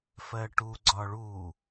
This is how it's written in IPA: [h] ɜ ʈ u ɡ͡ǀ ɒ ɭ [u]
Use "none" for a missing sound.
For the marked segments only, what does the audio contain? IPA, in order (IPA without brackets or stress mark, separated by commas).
f, u